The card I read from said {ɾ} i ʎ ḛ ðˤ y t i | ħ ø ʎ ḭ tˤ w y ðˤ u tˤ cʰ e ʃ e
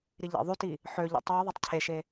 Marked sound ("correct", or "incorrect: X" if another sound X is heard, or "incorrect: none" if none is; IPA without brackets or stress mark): correct